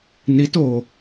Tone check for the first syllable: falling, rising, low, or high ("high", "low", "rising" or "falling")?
rising